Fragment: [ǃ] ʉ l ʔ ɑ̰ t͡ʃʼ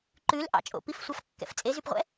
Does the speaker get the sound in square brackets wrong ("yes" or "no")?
no